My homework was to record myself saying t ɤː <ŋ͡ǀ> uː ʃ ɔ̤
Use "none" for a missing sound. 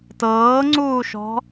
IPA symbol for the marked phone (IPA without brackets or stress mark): ŋ͡ǀ